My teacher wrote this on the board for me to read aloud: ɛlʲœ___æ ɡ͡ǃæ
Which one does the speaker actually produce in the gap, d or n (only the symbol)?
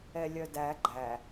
d